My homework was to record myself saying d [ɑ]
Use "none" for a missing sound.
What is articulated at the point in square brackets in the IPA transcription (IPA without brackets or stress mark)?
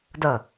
ʌ